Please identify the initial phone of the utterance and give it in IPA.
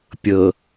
pʲ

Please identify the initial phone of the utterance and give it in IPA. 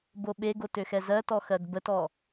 b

